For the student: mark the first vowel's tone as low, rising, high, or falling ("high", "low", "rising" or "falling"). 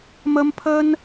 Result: high